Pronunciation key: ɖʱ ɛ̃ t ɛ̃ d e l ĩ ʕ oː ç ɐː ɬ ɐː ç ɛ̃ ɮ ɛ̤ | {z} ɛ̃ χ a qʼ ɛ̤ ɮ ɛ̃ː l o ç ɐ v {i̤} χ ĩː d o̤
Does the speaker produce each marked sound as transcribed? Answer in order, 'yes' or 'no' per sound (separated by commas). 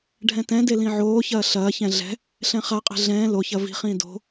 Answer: no, yes